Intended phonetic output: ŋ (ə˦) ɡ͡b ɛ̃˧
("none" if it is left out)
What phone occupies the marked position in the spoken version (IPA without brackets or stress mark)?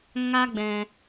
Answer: a˦